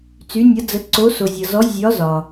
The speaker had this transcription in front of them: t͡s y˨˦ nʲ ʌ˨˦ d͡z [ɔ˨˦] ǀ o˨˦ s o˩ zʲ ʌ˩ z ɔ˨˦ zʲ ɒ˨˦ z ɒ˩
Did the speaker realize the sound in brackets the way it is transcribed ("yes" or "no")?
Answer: no